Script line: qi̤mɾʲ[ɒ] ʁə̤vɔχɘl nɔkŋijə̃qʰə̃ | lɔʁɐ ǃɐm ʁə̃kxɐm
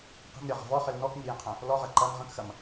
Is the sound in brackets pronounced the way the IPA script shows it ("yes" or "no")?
yes